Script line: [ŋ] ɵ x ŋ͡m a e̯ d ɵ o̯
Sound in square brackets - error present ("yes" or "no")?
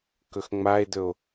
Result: yes